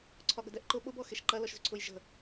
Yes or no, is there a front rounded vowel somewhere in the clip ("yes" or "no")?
yes